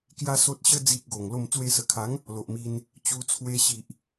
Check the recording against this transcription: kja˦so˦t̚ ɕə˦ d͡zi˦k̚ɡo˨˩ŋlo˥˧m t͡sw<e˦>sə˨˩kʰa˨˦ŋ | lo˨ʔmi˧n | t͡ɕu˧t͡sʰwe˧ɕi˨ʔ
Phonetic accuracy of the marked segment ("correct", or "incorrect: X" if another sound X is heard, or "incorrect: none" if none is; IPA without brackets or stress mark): incorrect: e˧